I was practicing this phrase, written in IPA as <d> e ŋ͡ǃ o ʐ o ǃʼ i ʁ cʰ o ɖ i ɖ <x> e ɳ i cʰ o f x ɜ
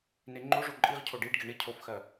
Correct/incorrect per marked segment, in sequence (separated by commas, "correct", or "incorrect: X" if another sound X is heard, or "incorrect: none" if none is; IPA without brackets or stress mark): incorrect: n, incorrect: ɡ